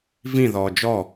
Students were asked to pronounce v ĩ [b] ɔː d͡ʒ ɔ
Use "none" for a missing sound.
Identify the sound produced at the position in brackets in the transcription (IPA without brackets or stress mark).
ð